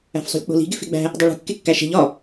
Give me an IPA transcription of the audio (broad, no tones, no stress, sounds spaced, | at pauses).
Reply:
æ̤ f sˤ ṳ lʲ k͡p o̤ l i̤ ɡ e f e̤ ɡ͡b æ̤ | dˤ o ɭ ṳ kː e kː æ ʃ e̤ ʎ ɒ